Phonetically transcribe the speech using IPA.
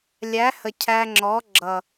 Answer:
lʲ æ˨˦ h ə˨ cʰ æ˧ ŋ͡ǁ ɔ˨˦ ɡ͡ǁ ʌ˨

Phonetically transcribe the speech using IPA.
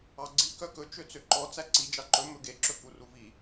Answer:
ɑ ɡ͡ǀ i k œ k ɵ t͡ʃ ø t͡s ø ǃ ɔ t͡s æ ǀ i d͡ʒ ɑ ǃ ɵ m ɵ ɡ e ǁ ɵ k u r u v i

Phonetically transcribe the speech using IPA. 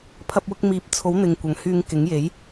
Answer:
pʰ ɐ˧ p̚ w ʊ˧ k̚ m iː˨˥ p̚ t͡sʰ o˨˥ w n̪ ɪ˨ ŋ kʷ ɐ˨˥ ŋ h yː˧ ŋ k ɪ˨˥ ŋ j e˨˥ j

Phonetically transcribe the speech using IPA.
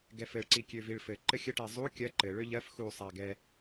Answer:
ɡ ɛ f ɘ ɭ ǀ i kʲ ø v i ɭ f ɘ ǃ ɘ xʲ ə ʈ ɛ zˤ u kʲ ɜ ǃ ɘ ɭ ø ʎ ɜ f x u sˤ a ɡ ɛ

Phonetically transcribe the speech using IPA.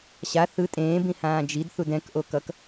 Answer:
ɕ a θ ɯ tʼ ẽː b ĩ h ãː d͡ʒ i d θ u d ɛ̃ k ʔ o k ʌ k

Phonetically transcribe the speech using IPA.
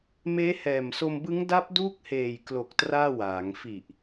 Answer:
m eː˦˥ h ɛː˨˩ m s o˧ m b ɯ˦˥ ŋ d a˦˥ p̚ d uː˦˥ k̚ h eː˨˩ j k l o˨˩ k̚ t r aː˥˩ w aː˩˦ ŋ f i˨˩ ʔ

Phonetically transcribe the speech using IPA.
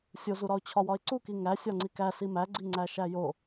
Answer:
sʲ o z u ɾ ɒ ʊ̯ t͡ɕʰ ɒ w ɒ ɪ̯ ǀ u k i ŋ æ sʲ ɒ ŋ͡ǀ i k æ s i m æ ɡ͡ǀ i ŋ͡ǀ æ ʃ æ j o

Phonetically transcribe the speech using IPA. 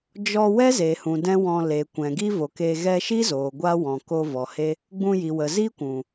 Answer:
d͡ʒ ɔ˧ w ɛ˦ z e˨ h ũ˨ d ɛ̃˦ w ɔ̃˧ l e˨ kʷ ɛ̃˨ ɡ i˦ v o˨ k e˧ ɣ ɛ˧ ʃ i˦ z oː˨ ɡʷ a˦ w ɔ̃˨ k o˧ v ɔ˨ h e˦ | ɡ͡b ũ˧ j i˨ w ə˨ z i˦ kʷ ũ˨

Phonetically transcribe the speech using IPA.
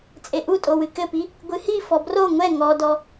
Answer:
t͡sʼ e ʔ u tʼ o w ɨ k ɘ p i | ɡʷ ɨ h i f ɔ b r o ŋʷ ɛ ŋ ɔ d ɔ

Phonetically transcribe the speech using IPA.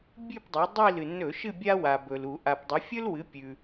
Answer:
bʲ ʉ˦˨ p dˤ ɵ˩˧ dˤ i˦˨ l ɨ˩ nː ɵ˧˩˧ ʃ ɨ˦˨ bʲ a˦ w a˩ b ɵ˩ l u˧˩˧ ʔ a˩ p dˤ ɐ˩˧ fʲ ɵ˦ l w ɨ˩˥ pʲ ʉ˩

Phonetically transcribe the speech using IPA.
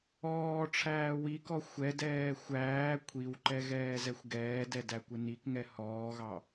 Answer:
ɔː ʈ͡ʂʰ æː w i k ɔ xʷ ɛ d ɛː xʷ æː kʷʰ i w ǃ ɛ ɣ ɛː z ɛ xʷ ɡ ɛː d ɛ d æ kʷ ɪ n i k ŋ ɛ h ɔː ɣ ɑ

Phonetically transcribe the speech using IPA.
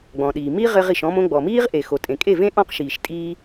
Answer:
ɡ͡b ɔ̃˨ ɗ iː˨ m i˦ ʁ ɘ˧ ʁ i˨ ʃ ɔ̃˧ m õ˧ ɡ͡b ɔ˨ m iː˦ ʁ ʔ e˨ x o˨ tʼ ẽ˨ kʼ e˦˨ v ẽ˦ ʔ ɔ̃˦ q ʃ iː˨ ʃ tʼ iː˦

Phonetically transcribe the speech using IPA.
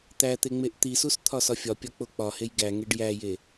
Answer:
t̪ æ t̪ e ŋ͡m e ʔ t̪ i s u s t̪ʰ ɒ s ɒ fʲ ɒ pʲ ɒ k͡p o k͡p ɒ h e j ɡ æ ŋ e ɖ j æ j e

